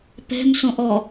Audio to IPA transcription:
p ɛ̤ m s õ ʔ ɔ

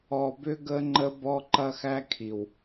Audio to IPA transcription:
ɔ˧ b ʏ˦ ɡ ə˦ ŋ͡ǃ ə˦ b ɔ˦ ǃ ɐ˦ x æ˦ kʰ i˨ w

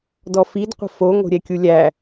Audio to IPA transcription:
d ɔ f i d qʷ ə̤ f o ŋ o̤ ɾʲ ɛ kʲ u lʲ æ

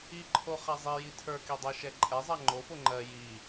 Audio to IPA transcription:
i ǃʰ o χ a zˤ i j i tʰ ə˞ k i dˤ ɜ ʃ ɛ ǃʼ ɛ zˤ a ŋ͡ǃ o f o ŋ͡ǃ ɜ j i

